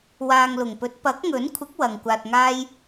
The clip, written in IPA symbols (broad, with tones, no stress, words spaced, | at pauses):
waː˨ŋlʊ˨˩ŋpɵ˨˥t̚ pɐ˨˥k̚ŋɵ˨˥nkʷʰɪ˨˥k̚ wɐ˨ŋkʷaː˧t̚ŋaː˥j